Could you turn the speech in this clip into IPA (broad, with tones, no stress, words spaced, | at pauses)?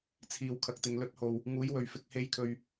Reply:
t͡sʰiː˨wkʰɐ˨k̚t̪ɪ˨ŋ lɵ˧t̚ho˨w | ŋuː˨˥jwɵ˨ɥ fɪ˧k̚he˧jkʰɵ˨ɥ